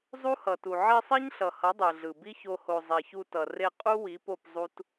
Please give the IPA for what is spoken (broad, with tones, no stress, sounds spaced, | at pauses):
zˤ u˦ h ʌ˨ t u˨ ʕ i˧ sˤ ɛ˦ ɲ ɬ ʌ˨ h ʌ˨˦ dˤ ɯ˨ ɮ ɯ˨ b i˦ ç o˧ h o˨ zˤ ɛ˨ ç u˧ t ʌ˨ r e˦˨ qʼ u˦ w i˨˦ p o˦˨ p zˤ u˦ t